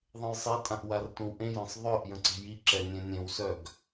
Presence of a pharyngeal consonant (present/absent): absent